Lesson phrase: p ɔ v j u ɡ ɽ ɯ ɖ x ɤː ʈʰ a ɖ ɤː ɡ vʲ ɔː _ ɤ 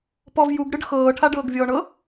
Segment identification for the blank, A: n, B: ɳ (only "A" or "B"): B